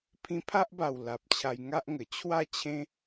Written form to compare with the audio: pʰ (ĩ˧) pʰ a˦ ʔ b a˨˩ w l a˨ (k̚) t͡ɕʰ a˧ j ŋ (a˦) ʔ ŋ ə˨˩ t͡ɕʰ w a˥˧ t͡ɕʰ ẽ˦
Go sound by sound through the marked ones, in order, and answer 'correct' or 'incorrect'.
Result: correct, incorrect: p̚, correct

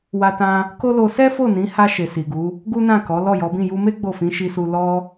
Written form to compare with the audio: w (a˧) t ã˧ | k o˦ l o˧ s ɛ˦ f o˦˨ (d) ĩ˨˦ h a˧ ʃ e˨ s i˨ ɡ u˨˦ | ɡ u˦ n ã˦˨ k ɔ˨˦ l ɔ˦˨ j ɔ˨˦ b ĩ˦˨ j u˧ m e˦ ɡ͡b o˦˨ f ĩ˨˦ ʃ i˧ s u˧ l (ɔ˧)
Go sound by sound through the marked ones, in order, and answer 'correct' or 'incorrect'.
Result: correct, incorrect: n, correct

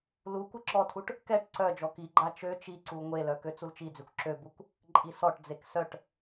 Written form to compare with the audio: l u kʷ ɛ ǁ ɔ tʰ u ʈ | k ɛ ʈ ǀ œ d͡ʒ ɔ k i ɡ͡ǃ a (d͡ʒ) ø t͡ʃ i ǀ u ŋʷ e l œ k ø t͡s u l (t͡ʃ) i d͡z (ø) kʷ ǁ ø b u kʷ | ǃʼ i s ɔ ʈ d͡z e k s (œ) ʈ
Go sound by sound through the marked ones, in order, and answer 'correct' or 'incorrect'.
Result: incorrect: t͡ʃ, correct, correct, correct

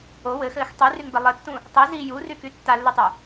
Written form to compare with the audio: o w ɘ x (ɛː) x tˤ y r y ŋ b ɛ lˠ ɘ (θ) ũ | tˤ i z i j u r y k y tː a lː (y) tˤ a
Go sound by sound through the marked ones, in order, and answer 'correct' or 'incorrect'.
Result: incorrect: ɘː, incorrect: tː, correct

